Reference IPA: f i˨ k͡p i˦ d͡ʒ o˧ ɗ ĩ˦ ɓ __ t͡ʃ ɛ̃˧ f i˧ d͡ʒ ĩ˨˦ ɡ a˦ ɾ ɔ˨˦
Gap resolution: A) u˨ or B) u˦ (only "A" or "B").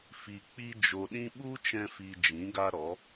B